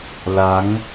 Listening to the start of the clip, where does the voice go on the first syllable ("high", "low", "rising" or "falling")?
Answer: rising